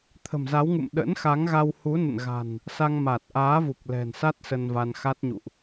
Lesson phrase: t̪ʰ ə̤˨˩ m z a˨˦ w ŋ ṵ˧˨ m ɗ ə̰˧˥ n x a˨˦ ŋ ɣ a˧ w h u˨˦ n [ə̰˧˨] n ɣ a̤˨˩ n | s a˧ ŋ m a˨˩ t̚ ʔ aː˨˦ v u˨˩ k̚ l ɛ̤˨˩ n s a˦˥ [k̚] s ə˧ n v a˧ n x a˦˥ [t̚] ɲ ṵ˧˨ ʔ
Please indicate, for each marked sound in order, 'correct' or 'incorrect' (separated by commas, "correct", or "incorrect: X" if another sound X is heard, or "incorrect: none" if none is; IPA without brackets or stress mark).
correct, incorrect: t̚, correct